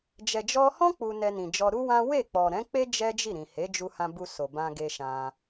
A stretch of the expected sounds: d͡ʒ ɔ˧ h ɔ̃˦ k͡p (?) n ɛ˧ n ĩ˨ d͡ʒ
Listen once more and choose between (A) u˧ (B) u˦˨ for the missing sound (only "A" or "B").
A